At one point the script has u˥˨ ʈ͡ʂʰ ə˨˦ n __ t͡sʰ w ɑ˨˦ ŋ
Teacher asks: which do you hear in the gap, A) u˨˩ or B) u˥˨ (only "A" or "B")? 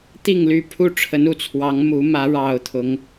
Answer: A